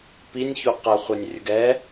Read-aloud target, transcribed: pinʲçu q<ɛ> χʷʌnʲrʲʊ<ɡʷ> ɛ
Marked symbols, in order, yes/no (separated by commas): no, no